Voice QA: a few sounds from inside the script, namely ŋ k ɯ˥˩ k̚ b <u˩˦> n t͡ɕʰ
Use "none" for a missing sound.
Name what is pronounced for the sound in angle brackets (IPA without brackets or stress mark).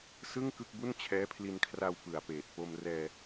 u˥˩